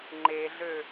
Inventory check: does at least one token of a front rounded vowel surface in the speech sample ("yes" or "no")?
yes